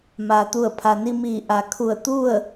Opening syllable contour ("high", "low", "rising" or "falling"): low